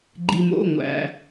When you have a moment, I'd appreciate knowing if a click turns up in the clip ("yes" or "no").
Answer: yes